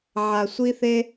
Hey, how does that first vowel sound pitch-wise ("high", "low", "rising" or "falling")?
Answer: low